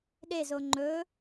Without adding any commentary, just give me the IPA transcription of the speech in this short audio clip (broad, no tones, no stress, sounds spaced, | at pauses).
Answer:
ɗ e z o ŋ͡ǃ ɵ